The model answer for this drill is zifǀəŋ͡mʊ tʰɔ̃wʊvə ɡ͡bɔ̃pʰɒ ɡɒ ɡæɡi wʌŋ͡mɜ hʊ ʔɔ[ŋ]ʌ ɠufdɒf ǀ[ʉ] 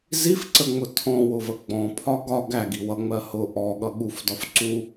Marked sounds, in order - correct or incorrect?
incorrect, incorrect

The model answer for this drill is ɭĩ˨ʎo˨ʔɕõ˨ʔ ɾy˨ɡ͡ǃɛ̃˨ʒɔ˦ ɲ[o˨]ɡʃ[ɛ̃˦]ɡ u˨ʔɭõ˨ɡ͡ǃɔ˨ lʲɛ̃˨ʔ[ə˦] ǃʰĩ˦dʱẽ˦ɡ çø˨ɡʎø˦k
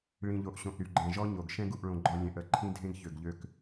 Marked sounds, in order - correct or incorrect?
correct, correct, correct

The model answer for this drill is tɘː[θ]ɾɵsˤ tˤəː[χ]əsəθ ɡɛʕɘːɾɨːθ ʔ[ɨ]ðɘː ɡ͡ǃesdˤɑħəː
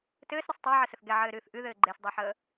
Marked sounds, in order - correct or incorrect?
incorrect, incorrect, correct

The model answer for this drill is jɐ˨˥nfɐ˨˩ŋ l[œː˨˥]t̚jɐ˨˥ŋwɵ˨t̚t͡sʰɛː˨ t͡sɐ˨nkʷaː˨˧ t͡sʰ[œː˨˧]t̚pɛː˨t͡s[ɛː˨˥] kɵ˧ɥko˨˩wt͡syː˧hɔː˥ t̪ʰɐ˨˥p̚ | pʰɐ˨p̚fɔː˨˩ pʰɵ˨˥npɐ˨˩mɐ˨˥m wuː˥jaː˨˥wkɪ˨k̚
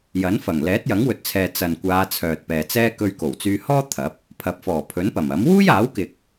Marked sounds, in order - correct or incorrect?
incorrect, incorrect, incorrect

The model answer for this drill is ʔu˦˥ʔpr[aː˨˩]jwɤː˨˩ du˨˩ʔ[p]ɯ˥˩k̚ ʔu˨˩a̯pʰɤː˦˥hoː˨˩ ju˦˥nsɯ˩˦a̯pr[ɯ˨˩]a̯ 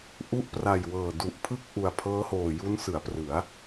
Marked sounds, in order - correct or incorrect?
incorrect, incorrect, incorrect

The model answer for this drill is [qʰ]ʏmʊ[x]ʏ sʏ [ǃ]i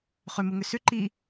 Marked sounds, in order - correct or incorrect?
incorrect, incorrect, correct

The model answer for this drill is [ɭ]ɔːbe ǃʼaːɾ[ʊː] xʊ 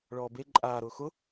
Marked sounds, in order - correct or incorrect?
correct, correct

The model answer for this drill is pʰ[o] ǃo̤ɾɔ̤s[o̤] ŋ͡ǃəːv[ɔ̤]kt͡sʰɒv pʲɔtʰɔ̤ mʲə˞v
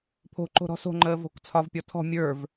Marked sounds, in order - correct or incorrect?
incorrect, correct, incorrect

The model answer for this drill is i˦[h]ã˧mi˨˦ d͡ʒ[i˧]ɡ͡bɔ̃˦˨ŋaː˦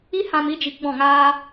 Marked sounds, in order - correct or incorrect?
correct, correct

